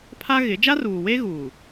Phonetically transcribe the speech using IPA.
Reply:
pʰa˦ɣɪ˨˦ d͡ʒa˦ruː˨we˦ɣuː˨

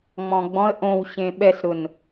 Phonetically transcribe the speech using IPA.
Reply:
ŋ͡mɔ̃ɡ͡bɔ̃ə̯ ʔõwɕẽ ɓɛsɾʊn

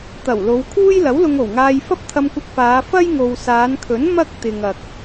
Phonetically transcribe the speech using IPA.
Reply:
t̪ɐ˨˩wlo˨˧wkʰuː˥j lɐ˨˥wlʊ˧ŋo˨˩wŋaː˧j fɐ˥p̚t̪ʰɐ˧mkʷɐ˧k̚faː˨˧ fɐ˥jŋo˨wsaː˨˧nkʰɵ˨˥n mɐ˥k̚ t̪ɪ˨ŋ ɐ˨k̚

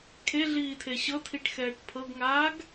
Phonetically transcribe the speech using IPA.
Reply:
kʰeɮiːtʰe ɕɤtʰiʈxɛːʈ pʰɤɡŋaːɡ

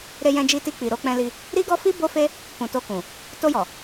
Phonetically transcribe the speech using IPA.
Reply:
ɾe˧jɛ̃˧d͡ʒi˧ti˧ k͡pi˨ɾo˧k͡pɛ̃˧li˧ | ɾi˦ɡɔ˦fi˦ bo˦fe˦ | kũ˨to˧kũ˨ | to˧jɔ˨

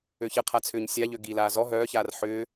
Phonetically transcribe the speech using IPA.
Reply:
øçəqʰa t͡sʰʏːɲsʲaʎø ɡilaː zɔ ɦœːçaːr ħʏː

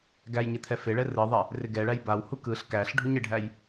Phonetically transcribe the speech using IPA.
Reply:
ɡæjɲɪ t̪ʰɛfɪɭɛ rɯðˤɛ | rɪɡɛɭæj bawhu kɯɬ kæɬ ɖʱuɲɪɖʱæj

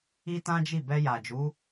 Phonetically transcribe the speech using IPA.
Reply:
i˦tã˦d͡ʒi˦˨ bɛ˧ja˨d͡ʒu˨˦

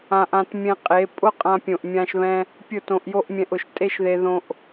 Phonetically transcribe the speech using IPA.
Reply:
ã˧ʔã˧tmʲɛ̃˧qʼe˨˦ pʼʊ˦ qʼã˧pʲõ˨ʔ mʲã˧ʃβɛ̃˧ | pʲʊ˦˨tõ˧ʔjo˦ʔmʲɛ̃˧ʔ ʊ˨ʃ tʼe˦ʃðe˧ ðõ˧ʔ

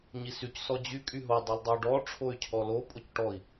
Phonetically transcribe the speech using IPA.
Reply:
ɲisyc sɔd͡ʑy kʼyɦo dˤɛldˤɛu̯ɖɔ ʈ͡ʂʰoy̯cʰɔlo pʼocʈɔi̯

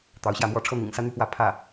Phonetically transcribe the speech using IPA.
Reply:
t̪ɑ˧˥ʊ̯ɕjä˥˩mwɔ˥ ʈ͡ʂʰɤ˥n̪ḭ˨˩ŋsä˥ n̪y˥˧pwä˥˧ pʰä˥˩

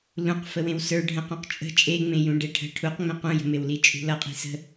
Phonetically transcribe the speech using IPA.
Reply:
lũq fəwẽwsə˞ ɖʱə̃qũq t͡ʃʼə̤ t͡ʃʼeŋ͡mẽjũ ɖeʈʰə̤ ʈʰuqŋ͡mẽ qũjə̤ mewlit͡ʃʼṳlʌ qʼi̤sə̤

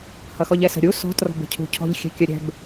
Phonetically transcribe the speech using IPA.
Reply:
hʌxɔʎɛsə̤ ɾʲu sɔ̤ trɔ̤bə̤cʰṳcʰɔ̤ʎ xʲɛ̤kʲəɾʲɛ̤b

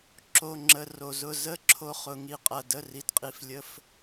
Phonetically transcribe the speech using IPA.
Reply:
ǁo˧˥˧ŋ͡ǁə˧˥˧ro˧zʊ˧˥˧ zə˧˥˧ǁʰo˧ χʊ˧ŋi˧qʼɐ˧ də˧˥˧ri˧dqʼi˧flʲə˧˥˧f

